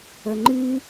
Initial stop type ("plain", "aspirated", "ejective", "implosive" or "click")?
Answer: click